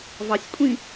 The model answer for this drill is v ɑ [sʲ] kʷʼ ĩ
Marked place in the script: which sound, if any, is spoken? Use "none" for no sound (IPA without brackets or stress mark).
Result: sʲ